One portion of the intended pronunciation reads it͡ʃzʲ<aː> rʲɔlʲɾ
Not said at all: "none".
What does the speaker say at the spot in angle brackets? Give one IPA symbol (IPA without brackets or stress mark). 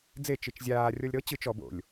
aː